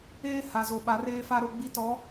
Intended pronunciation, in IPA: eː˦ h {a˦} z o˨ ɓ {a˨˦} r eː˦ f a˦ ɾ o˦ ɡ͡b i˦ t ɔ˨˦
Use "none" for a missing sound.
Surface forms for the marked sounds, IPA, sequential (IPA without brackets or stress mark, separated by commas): a˨, a˨˦